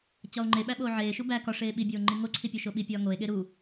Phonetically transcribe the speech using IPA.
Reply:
t͡ɕ ɒ o̯ ŋ͡ǃ e ɓ æ ɓ oː ʕ eː ʃ u b æ k ɒ ʂ eː ɓ i bʲ oː ŋ͡ǃ i ŋ o ǀʰ i pʲ o ʃ o ɓ i pʲ ɒː ŋ o e̯ ɠ e ɾ u

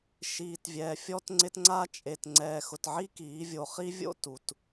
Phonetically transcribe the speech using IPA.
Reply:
ʃ iː˨ t vʲ ɛː˨ fʲ ɔ˦ t ŋ͡ǀ ɪ˦ t ŋ͡ǀ a˦ t͡ʃʼ e˨ t ŋ͡ǀ ɛː˨ x ʊ˨ t ʕ i˦ k iː˨˦ vʲ o˨ χ i˦ vʲ o̰˦ t u˨ t

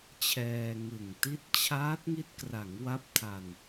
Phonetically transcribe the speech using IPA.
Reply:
t͡ɕʰ ɛː˧ ŋ ɯ˨˩ ŋ t i˥˩ t̚ t͡ɕʰ aː˦˥ t̚ ŋ i˦˥ t̚ k r a˩˦ ŋ w a˦˥ p̚ tʰ a˧ n

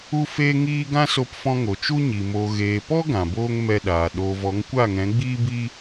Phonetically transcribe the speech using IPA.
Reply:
u˦ f eː˦ ŋ iː˦ ɡ ã˦ s o˧ p f ɔ̃˧ ŋ o˨ t͡ʃ u˦ ɲ i˨ m o˨ ɣ eː˨ p ɔ˦ ɡ ã˨ b oː˦ ŋ m ɛ˧ ɗ aː˨ ɗ oː˨ v ɔ˨˦ ŋ kʷ a˦˨ ŋ ɛ̃˨˦ ɡ͡b iː˦ b i˦

